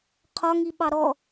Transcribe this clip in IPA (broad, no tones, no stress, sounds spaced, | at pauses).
qʰ ɒ ŋ i ɓ ɑ ɾ ɔ